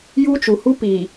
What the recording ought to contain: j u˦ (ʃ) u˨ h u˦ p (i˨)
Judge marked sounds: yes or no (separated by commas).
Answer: no, yes